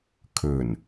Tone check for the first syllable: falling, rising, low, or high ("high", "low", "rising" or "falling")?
low